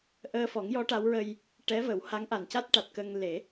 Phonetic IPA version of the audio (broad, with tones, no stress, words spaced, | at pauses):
ʔəː˧fɔ˨˩˦ŋjɔ˧˥ ʈa˧˥wɹə˧j | ʈɛ˧˥ və˨˩˦wha˧˥ŋʔa˨˩n ca˦˥t̚ ʈa˨˩t̚kə˧ŋ le˨˩˦